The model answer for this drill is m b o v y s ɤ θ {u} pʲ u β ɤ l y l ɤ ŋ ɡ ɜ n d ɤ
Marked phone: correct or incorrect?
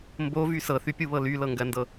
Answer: incorrect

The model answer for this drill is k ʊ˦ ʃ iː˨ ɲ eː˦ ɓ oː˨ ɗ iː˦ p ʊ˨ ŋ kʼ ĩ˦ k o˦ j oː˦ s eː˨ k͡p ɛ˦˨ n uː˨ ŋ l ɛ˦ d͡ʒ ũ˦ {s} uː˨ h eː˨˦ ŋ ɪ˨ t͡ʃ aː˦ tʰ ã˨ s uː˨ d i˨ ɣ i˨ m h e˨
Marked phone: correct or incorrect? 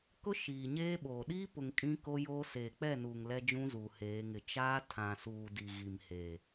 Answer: incorrect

